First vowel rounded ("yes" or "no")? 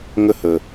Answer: no